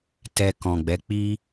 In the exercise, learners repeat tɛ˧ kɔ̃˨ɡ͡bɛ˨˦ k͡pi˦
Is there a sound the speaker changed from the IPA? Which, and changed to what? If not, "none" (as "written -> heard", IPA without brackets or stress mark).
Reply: none